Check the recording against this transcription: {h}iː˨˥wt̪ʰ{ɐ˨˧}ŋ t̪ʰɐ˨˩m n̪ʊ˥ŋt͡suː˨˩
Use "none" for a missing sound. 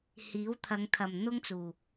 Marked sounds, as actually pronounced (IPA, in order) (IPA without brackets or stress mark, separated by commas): h, ɐ˨˧